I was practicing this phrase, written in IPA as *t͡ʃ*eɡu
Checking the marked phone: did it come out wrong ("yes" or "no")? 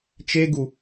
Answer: no